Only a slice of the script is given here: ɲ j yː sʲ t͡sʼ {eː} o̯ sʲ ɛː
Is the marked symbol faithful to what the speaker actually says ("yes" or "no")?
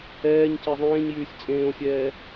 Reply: no